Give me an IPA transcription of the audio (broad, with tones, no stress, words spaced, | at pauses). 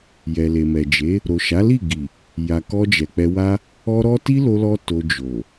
jɛ˨le˨mɛ˨d͡ʒe˨˦ | ɾo˨ʃa˨˦li˦˨ɡi˨ | ja˨kɔ˧d͡ʒɛ˨ k͡pɛ˧wa˦ | ɔ˦ɾɔ˦ ti˦ lo˧lɔ˧ to˧d͡ʒo˨